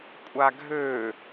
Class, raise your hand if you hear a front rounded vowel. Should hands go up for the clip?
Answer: yes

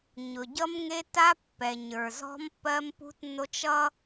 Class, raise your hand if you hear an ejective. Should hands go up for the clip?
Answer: no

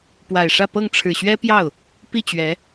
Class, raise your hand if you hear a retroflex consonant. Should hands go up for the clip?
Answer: yes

